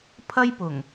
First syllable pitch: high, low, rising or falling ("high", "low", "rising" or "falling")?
high